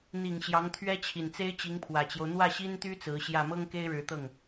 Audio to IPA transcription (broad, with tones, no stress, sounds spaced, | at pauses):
n̪ i˨˩ ŋ ɕ j ɑ˧˥ ŋ t̪ʰ ɥ ɛ˥ t͡ɕʰ i˨˩ n t͡s e˥ ɪ̯ t͡ɕ i˧˥ ŋ pʰ w ä˨˩ t͡ɕ j o˦ ʊ̯ n̪ w ä˥˩ ɕ i˥ n t̪ y˥ t͡s ɹ̩˧˥ ɕ j ä˥˩ m ɤ˥ ŋ k e˥ ɪ̯ ɻ ɻ̩˧˥ t̪ ɤ˥˩ ŋ